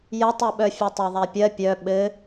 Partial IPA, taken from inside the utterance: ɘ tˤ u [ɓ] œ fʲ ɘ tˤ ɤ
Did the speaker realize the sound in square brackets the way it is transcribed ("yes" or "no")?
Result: yes